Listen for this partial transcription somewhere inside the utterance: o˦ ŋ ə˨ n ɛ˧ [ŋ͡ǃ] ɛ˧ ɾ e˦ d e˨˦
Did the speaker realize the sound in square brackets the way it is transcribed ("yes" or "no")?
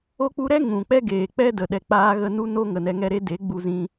no